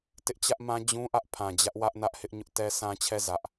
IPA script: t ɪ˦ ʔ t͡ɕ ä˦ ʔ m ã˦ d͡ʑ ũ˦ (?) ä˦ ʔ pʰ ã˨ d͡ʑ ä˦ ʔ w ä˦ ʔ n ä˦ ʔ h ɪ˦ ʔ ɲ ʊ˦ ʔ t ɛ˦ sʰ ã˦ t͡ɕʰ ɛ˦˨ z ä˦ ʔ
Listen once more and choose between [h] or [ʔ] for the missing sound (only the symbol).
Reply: ʔ